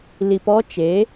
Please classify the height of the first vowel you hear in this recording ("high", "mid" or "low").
high